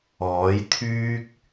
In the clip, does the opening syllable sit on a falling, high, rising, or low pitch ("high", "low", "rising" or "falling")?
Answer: rising